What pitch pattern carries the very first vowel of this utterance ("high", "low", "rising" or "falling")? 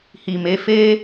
low